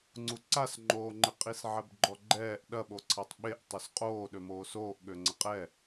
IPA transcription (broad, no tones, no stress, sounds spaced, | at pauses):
ŋ͡ǀ u ǀ a s ŋ͡ǃ oː ŋ͡ǃ ɪ qʼ i s ʕ ɛ b ɡ͡ǃ ɔ ɡ͡ǃ ɛː ʔ ɗ ɐ ɓ o ǀʰ a tˤ ɓ e ʔ tˤ ø s qʼ oː ɗ ø m oː s oː ʔ ɠ ø ŋ͡ǀ ə qʼ ɛ